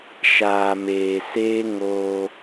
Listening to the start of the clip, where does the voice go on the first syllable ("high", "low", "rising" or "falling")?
low